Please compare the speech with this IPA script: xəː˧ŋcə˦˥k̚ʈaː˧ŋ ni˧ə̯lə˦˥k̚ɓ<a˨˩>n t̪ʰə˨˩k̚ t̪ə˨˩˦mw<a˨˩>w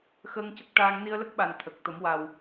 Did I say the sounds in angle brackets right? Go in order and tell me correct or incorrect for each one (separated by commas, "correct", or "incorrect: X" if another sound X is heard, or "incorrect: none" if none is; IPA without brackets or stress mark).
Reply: correct, correct